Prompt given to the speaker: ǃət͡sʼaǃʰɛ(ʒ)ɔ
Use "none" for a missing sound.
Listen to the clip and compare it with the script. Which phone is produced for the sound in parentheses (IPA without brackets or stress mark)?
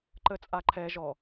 ʒ